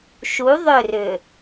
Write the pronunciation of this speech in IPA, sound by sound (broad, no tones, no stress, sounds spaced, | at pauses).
ʃ u ðˤ ʏ r ʏ